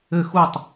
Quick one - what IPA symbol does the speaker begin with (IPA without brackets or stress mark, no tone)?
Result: ɘ